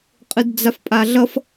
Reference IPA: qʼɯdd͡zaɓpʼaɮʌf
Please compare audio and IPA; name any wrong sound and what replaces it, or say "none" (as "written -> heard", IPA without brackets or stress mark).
ɓ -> f